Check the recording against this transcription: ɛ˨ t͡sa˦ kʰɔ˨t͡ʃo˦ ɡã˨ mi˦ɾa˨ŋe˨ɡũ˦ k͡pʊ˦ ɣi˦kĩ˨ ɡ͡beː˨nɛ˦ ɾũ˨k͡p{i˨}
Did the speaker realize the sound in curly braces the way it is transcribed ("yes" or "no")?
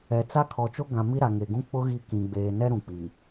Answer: yes